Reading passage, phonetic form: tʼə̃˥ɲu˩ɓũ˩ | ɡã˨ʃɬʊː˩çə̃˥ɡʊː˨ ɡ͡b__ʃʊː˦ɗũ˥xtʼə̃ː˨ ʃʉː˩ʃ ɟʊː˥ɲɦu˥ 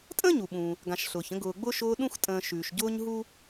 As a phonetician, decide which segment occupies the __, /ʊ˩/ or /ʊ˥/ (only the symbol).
ʊ˥